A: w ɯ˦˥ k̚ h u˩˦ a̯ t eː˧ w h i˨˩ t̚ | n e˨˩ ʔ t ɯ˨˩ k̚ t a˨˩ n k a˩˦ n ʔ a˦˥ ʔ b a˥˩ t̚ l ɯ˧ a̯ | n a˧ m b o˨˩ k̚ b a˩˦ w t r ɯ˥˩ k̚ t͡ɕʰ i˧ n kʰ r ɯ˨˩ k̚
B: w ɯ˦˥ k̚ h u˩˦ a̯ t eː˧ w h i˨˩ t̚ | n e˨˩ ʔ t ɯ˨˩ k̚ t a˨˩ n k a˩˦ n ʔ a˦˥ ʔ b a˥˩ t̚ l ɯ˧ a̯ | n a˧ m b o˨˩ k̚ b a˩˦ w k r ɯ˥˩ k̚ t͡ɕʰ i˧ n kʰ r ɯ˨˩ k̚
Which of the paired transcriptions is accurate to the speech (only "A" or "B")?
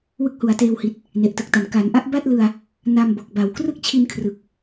B